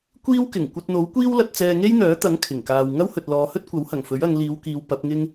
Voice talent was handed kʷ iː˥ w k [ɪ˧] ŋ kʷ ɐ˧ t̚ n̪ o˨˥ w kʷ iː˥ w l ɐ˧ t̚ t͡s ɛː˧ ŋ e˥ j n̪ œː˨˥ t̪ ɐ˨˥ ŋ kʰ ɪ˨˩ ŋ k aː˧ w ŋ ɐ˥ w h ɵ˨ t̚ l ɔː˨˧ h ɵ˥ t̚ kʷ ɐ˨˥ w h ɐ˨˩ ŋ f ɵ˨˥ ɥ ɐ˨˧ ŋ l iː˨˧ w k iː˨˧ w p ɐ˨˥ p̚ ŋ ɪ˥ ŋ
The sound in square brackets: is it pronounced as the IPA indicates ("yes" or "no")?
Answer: no